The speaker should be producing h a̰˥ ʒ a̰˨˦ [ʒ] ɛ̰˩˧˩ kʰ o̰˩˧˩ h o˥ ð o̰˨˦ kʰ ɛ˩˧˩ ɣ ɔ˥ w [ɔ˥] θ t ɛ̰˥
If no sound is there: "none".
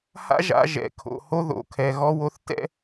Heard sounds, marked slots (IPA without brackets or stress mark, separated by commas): ʒ, o˥